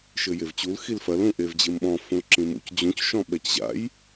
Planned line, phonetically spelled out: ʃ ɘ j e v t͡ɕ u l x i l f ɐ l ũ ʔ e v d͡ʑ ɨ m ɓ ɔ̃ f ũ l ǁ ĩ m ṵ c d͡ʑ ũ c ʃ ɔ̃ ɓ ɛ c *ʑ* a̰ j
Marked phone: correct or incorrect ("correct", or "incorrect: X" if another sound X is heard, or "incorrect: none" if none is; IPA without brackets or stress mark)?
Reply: correct